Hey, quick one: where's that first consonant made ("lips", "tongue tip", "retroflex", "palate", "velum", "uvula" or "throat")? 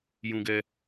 palate